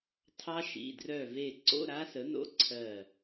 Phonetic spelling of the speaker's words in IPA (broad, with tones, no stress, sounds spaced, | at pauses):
tʰ ɑ˦˥ ʃ ḭ˩˧˩ d r œ˦˨ v e˦˨ ǀ o̰˧˥˧ ɾ a˦˥ s ə˨˥ n o̰˧˥˧ ǀʰ ɜ˦˨